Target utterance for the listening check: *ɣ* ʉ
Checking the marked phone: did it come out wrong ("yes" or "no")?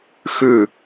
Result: yes